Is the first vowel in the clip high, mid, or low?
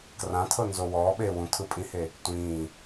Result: low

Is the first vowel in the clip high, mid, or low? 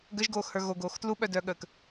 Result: mid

